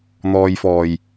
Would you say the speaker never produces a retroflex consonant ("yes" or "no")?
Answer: yes